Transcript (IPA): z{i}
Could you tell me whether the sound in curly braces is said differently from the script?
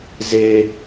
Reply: yes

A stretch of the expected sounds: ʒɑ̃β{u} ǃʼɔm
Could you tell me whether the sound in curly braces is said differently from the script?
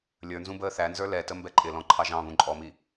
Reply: yes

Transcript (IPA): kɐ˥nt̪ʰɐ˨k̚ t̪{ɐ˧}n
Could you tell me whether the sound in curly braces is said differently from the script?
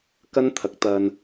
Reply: no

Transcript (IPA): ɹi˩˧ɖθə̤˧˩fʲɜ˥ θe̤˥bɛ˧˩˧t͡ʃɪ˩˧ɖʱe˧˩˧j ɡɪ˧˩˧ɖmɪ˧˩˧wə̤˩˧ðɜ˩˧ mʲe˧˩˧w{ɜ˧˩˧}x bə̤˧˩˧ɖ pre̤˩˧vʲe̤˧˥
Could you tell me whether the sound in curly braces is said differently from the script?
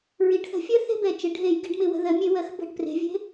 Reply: yes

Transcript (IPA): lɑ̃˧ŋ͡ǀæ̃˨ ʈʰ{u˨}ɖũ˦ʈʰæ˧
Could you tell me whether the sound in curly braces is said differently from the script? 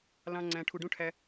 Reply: no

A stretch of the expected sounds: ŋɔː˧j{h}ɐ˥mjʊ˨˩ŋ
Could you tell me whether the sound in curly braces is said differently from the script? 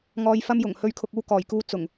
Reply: yes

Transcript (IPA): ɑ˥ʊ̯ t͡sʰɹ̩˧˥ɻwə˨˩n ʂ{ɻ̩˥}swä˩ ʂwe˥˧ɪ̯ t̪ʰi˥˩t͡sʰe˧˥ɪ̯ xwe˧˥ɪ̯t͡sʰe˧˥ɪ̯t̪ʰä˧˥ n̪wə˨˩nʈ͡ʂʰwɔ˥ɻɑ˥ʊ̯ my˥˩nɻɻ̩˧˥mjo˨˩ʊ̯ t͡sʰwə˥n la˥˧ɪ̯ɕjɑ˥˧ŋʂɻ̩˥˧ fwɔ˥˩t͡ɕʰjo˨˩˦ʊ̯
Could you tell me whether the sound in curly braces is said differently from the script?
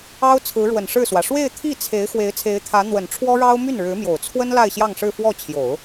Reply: yes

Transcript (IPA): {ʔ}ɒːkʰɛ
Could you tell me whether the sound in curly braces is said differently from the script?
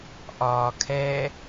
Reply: no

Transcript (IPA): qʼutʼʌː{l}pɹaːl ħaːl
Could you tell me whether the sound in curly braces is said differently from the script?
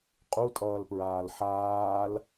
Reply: no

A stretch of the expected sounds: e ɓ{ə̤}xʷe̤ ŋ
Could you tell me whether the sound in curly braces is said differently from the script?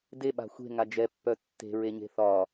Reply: yes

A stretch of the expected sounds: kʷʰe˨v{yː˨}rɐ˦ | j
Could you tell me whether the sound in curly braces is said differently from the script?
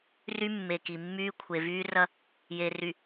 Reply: yes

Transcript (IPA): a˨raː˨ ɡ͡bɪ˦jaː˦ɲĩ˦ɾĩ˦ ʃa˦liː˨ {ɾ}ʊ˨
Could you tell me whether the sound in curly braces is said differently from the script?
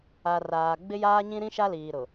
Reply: no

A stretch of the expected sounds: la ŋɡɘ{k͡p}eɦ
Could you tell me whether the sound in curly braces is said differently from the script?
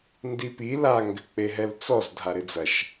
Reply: no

